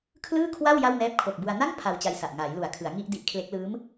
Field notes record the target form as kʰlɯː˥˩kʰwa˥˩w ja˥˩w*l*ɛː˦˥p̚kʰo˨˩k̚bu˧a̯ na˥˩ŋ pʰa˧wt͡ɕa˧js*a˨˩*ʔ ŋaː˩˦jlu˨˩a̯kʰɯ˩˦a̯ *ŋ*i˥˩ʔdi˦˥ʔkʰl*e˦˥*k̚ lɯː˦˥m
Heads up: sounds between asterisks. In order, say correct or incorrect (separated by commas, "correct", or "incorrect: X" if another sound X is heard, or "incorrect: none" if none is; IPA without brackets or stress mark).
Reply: incorrect: n, correct, correct, correct